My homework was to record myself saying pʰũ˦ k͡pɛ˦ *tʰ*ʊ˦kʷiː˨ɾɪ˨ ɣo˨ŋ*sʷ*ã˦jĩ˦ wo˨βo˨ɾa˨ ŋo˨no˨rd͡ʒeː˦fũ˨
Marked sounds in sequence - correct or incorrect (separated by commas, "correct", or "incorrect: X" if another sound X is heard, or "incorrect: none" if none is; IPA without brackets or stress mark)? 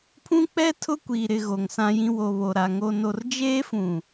correct, incorrect: s